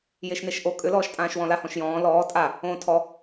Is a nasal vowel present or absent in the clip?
present